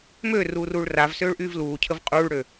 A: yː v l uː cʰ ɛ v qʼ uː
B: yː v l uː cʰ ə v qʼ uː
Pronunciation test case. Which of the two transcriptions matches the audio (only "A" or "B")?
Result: B